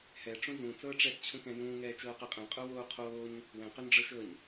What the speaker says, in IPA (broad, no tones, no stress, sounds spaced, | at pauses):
h ɛ ʈ͡ʂ ũ z ũ t͡s ɤː ʈ͡ʂ ɛ s t͡ɕʰ ũ k ɛ̃ j ũː ŋ ɛː t͡ʃ ɤː q ɛ qʼ ɛ̃ qʼ o w oː qʰ oː ɲ | w ɛ̃ q ʏ n ɖ͡ʐ ɤ ʃ ɤ ɲ